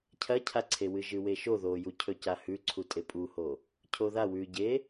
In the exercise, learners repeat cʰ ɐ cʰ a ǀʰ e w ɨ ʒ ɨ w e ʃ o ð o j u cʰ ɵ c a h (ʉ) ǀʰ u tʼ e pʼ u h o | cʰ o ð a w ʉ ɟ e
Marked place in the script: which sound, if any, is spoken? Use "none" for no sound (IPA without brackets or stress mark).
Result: ʉ